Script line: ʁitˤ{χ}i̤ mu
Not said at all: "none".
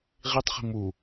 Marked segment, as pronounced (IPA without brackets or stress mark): χ